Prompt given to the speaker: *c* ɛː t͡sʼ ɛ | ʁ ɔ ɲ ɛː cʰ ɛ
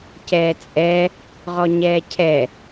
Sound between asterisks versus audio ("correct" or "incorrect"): correct